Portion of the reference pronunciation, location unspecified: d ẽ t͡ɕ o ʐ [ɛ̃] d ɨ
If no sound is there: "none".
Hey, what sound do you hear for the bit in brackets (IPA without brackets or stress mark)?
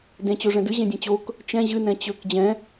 ɛ̃